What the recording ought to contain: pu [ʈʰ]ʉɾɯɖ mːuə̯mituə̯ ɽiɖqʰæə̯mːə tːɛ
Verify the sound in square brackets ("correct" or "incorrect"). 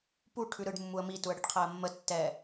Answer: correct